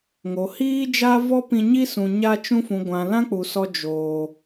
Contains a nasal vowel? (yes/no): yes